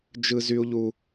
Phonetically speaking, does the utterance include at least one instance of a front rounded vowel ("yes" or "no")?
yes